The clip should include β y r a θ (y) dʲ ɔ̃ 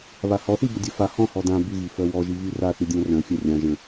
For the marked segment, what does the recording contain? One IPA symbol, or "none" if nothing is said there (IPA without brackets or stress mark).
y